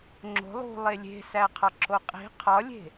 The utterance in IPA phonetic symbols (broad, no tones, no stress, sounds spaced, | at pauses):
ŋ͡ǁ o̤ lˠ ṳ lˠ e lʲ e̤ s æ qʰ ɒ ǁ o qʼ i̤ qʰ ɒ lʲ e̤